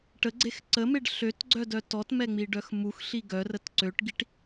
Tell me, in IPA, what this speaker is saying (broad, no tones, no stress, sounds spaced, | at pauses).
ʈ ə ɡ͡ǀ e x ǀ ə m e ɖ ɬ ø t ɡ͡ǀ œ d œ t ɔ t m ɛ ŋ͡m i ɖ œ x m u x ɬ i ɡ œ r ə t ǀ ø ʈ ɡ i ʈ